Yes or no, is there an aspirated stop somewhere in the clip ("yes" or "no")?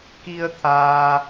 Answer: yes